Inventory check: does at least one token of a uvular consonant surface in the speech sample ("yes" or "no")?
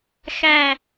no